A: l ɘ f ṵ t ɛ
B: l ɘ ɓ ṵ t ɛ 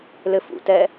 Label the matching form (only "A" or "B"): A